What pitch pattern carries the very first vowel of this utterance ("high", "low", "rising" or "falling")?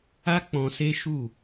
high